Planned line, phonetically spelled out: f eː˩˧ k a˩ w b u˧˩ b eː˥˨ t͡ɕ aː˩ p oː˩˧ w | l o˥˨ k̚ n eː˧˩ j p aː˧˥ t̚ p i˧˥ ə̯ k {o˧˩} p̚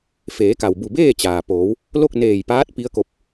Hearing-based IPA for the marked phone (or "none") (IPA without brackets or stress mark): o˧˥